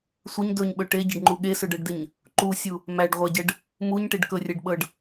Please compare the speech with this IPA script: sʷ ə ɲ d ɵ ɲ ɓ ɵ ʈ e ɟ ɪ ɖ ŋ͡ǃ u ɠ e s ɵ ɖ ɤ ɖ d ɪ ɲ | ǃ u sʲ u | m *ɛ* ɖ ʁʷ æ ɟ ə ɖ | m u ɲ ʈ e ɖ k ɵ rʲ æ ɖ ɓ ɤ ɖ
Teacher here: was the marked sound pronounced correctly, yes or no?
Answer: no